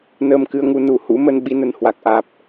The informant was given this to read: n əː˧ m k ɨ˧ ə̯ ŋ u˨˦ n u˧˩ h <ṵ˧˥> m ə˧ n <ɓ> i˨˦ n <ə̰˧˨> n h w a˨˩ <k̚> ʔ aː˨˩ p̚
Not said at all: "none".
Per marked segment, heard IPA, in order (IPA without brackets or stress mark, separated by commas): ṵ˧˥, ɓ, ə˨˩, k̚